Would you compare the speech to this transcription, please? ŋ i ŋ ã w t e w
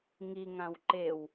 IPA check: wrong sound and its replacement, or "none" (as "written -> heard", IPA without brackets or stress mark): t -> ǃ